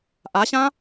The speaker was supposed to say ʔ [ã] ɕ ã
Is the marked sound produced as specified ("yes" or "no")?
no